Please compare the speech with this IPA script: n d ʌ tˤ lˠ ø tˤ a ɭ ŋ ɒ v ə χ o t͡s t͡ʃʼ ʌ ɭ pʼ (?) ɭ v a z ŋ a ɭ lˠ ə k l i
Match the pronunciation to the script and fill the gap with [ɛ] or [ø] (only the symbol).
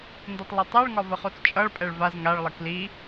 ɛ